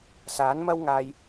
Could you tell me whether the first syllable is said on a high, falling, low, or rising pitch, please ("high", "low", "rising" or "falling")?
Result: rising